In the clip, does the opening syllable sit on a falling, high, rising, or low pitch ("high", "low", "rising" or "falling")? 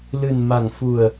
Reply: low